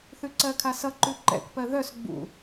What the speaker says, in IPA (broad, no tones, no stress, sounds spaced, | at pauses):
θ ʉ ǀ ɜ kʰ a s ʌ ǃ ʉ ǃ ɛ̰ k p ɜ ð œ s ɡ͡b ṵ